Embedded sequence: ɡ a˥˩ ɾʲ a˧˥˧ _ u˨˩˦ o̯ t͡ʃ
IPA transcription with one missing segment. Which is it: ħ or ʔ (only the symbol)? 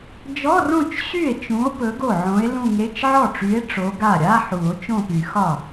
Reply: ħ